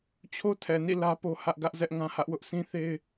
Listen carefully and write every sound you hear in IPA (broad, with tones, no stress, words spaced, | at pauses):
t͡ɕʰo˦tʰɛ˨nḭ˦˨ lä˦po˦ hä˦ʔɡä˦ʔ zɛ˦ʔŋã˦hä˦ʔwʊ˦ʔ sʰĩ˦θe˦ɪ̯